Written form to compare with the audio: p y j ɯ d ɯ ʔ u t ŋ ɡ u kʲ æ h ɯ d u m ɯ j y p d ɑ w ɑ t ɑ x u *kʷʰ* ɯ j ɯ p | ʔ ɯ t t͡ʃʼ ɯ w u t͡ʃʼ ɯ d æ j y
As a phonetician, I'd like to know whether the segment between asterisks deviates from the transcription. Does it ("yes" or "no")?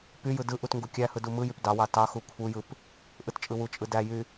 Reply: no